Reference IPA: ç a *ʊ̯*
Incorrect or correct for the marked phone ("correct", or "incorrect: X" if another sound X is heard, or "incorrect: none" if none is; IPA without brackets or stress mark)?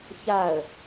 incorrect: ə̯